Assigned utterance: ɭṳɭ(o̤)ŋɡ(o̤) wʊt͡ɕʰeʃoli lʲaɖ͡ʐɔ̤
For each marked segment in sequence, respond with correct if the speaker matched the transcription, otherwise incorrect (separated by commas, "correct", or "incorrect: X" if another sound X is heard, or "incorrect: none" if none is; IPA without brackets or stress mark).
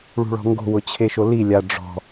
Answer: incorrect: ɔ̤, correct